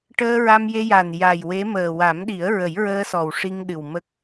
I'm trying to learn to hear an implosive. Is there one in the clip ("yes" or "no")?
yes